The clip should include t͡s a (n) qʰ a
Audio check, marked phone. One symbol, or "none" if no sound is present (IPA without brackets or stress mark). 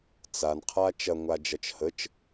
n